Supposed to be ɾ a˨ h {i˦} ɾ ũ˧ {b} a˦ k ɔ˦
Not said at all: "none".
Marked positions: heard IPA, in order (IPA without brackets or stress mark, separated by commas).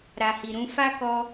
i˨, f